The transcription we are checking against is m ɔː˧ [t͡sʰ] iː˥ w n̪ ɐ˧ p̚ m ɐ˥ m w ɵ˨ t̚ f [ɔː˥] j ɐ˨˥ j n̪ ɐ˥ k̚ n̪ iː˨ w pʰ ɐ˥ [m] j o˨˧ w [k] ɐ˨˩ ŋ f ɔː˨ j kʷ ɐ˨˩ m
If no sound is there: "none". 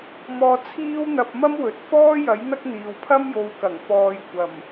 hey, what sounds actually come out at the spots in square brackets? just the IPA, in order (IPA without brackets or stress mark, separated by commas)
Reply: t͡sʰ, ɔː˥, m, k